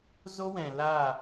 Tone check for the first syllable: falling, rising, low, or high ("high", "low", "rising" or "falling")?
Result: high